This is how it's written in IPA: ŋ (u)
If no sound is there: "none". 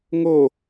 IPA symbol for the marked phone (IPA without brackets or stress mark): o